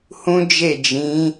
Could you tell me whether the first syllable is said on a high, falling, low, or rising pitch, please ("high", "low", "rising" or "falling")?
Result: high